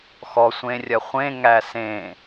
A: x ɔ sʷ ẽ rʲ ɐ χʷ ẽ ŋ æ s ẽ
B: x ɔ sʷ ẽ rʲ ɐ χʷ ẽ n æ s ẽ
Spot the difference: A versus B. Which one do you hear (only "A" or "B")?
A